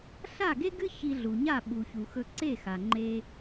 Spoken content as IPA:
ɬa˥˩ɡe˥ɡɨ˥ çi˧ɮu˩ɲa˥˩ ɓu˩çu˩xɵ˧ ǀe˥˩xa˩ŋ͡ǃe˧

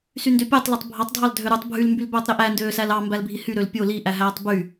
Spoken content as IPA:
syndøpʲætˤ letˤbʱɑtˤdʱɑl dʱøɾutˤ bʱyl mbylbøːtˤɾiʔæ ndøːsælɑ mbælbʱihy ɾølpʲo liʔæɦæːtˤ by

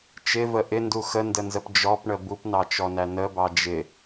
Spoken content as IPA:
t͡ʃɪvə ʔɪndu xəndənzəp d͡ʒɔpɳə bupnɑt͡ʃɔnæ nəbɑ d͡ʒɪ

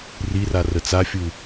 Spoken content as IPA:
rira rət͡safʲu

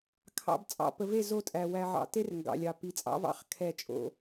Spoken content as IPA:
kʰɑ̰˨b t͡sʼɑ̰˨pə˨ve˦˨ zo˦˨tʼæ˨ wæ˨ʕɑ̰˨te˦r ŋɡɑ̰˨lʲɑ˨ pi˨t͡sʼɑ̰˦vɑ̰˦χ kʰɛ˦˨t͡ʃʼo̰˦

